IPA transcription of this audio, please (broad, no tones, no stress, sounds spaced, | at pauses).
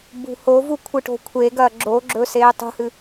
b ṳ h o v u kʷʰ ɨ ʈ o̤ kʷʰ e ɡ ɐː ɡ͡ǁ o ɡ͡ǁ ɵː s eː tˤ ṳ h ɨ